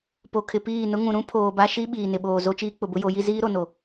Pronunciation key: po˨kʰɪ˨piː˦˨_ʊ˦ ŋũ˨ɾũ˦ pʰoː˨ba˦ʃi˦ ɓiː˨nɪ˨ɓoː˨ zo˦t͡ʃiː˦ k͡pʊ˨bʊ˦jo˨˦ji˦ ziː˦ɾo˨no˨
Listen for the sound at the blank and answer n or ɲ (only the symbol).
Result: n